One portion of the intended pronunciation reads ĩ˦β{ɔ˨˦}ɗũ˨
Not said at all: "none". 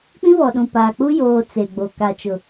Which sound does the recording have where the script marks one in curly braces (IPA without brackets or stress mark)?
ɔ˨